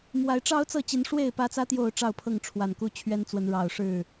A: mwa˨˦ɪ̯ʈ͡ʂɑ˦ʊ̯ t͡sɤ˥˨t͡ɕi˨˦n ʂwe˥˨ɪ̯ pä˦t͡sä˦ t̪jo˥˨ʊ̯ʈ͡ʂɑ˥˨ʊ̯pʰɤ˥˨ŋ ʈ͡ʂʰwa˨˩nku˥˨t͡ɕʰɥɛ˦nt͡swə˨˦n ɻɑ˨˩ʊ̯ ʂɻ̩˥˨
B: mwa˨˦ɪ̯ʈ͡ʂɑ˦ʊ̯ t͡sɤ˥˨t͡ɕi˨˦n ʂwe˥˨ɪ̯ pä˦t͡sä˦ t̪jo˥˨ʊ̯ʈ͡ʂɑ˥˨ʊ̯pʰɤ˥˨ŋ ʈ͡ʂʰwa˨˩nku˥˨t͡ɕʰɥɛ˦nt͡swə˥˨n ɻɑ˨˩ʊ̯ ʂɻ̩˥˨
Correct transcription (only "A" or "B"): A